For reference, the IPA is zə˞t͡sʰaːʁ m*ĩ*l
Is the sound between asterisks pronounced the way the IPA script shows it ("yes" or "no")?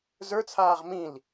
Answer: yes